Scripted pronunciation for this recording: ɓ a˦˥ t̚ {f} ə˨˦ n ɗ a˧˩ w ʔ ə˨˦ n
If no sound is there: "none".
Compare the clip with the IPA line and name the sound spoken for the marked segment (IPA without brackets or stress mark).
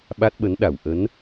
ɓ